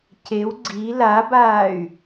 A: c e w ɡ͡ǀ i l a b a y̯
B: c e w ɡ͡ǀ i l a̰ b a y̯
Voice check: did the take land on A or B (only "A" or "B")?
A